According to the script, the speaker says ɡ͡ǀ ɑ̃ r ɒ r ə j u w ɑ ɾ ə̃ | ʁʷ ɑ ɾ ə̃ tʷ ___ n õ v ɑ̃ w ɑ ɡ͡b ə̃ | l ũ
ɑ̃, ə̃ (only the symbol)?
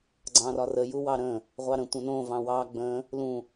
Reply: ə̃